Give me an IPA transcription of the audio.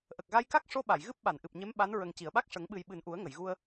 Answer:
ʔ ə˨˩ k̚ ɣ a˧ j k a˦˥ k̚ ʂ o˧ ɓ a˨˩˨ j ɣ ɨ˦˥ p̚ ɓ a˨˩˨ n ʔ ɨ˨˩ p̚ ɲ e˧˥ m ɓ a˧˥ n ɹ ə˨˩ ŋ c i˨˩˨ ə̯ ɓ a˦˥ k̚ ʂ ə˨˩˦ ŋ ɓ ɨ˨˩ j ɓ ɨ˨˩ n ʔ u˨˩˦ ə̯ ŋ ə˨˩˨ j ɣ u˧ ə̯

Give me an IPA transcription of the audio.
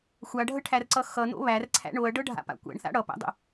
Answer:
xʷ a ɖʱ ə ʈʰ æ r ǀ ʌ x ʌ n o̰ β æ r ǀʰ æ̰ ɳ o ɐ̯ ɖ ɤ ɖʱ a̰ p a̰ kʷ æ̰ ɳ θ a̰ ɽ ʌ p æ̰ dˤ ə̰

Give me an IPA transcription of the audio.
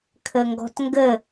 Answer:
kʰ ɘ ŋ ɡ ɔ̤ t ŋ ɡ ɘ

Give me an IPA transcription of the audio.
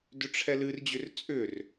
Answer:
d ʏ ʈ͡ʂʰ ɛ l ɨ r d͡ʑ ʏ r t͡sʼ ʏ r

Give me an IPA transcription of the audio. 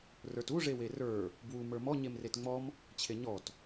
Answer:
r ə˞ t u ʐ e w e r ə˞ | b w u m ə˞ m ɔ ɲ e m r e t ŋ͡m ɔ m | t͡ɕʰ e ɲ ɔ t

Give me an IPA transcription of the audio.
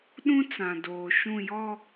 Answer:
ɗ ũ˦ t͡s ã˨ d oː˨ ʃ ũ˦˨ j ɔ˦˨

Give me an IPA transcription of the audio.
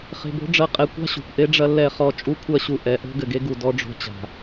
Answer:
χ e̤˨ b o̤˦ ɖ͡ʐ ɐ˦˨ qʼ ɛ˨ kʷ a̤˦ ɕ o̤˨ kʷ ʔ e˦ ɖ͡ʐ ɐ˦ lː ɛ˦˨ χ ɔ˦ t͡ʃʼ u˦ kʷʰ ɐ˦ ɕ u˨ ʔ ɛ˨ ʔ o̤˦ ɡ ɘ˨ ɡ e˦ ɡ u˨ d ɔ˦ ɖ͡ʐ o̤˦ t͡ɕ a̤˨

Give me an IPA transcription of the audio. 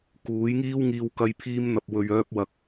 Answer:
k uː˨˥ j ŋ iː˥ w ŋ iː˧ w k ɐ˧ j pʰ iː˧ m n̪ ɐ˨ p̚ w ɵ˨ ɥ œː˥ p̚ w ɐ˧ k̚

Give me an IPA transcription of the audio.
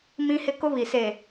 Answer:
m ĩ˦ h ɪ˦ k ʊ˦ β i˨ s eː˨

